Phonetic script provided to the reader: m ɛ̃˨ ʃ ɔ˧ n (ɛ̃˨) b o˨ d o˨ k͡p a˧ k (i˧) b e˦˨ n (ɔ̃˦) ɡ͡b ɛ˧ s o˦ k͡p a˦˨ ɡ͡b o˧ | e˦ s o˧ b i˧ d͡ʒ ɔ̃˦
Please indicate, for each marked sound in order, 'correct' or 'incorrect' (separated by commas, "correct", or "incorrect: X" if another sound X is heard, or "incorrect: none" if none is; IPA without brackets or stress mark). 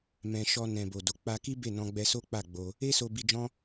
correct, incorrect: i˦, incorrect: ɔ̃˧